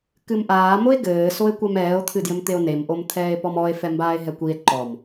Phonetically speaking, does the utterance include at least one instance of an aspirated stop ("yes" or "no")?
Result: yes